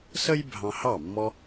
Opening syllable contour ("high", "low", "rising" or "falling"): high